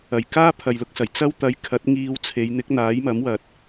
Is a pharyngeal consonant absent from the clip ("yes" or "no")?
yes